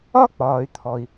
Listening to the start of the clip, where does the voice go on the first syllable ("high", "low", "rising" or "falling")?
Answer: high